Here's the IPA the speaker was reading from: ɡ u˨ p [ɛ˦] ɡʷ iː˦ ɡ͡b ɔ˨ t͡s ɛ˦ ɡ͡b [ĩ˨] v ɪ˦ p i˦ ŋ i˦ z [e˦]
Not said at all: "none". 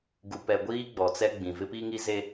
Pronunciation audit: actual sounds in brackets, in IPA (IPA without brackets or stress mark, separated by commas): ɛ˨, ĩ˨, e˦